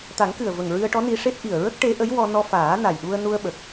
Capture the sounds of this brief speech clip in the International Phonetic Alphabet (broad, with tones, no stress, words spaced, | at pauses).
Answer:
t̪a˨˩˦ŋkɨ˨˩ə̯və˨˩ŋ ɹɨ˧ə̯ʈɔ˧˥ni˧ ʂe˦˥t̚ ʔi˨˩ə̯ɹə˦˥k̚ ʈe˧˥ʔə˧˥jwɔ˧ nɔ˧faː˨˩˦ na˨˩jɗu˧ə̯nu˧ə̯ɓə˨˩k̚